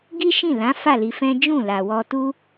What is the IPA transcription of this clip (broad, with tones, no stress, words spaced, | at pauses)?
ɡi˦ʃĩ˦˨ lã˨˦fa˦˨ li˧fɛ̃˦ d͡ʒũ˦˨la˨wɔ˧tu˦